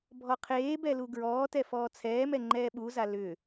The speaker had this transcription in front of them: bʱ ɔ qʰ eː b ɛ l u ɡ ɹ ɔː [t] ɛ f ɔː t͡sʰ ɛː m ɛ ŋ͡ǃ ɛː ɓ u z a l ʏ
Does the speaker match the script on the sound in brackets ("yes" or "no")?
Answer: yes